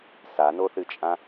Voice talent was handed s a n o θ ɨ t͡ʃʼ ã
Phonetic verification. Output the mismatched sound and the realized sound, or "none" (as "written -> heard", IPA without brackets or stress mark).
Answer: none